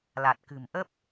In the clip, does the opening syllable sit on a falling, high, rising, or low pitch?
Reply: low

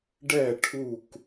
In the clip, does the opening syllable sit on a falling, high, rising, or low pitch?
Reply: falling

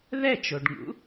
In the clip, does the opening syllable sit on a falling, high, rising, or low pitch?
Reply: falling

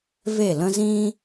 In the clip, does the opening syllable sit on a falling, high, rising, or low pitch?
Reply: falling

